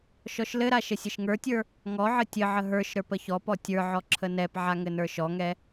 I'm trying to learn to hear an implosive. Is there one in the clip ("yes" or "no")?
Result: no